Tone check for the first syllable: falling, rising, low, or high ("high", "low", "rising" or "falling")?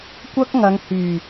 high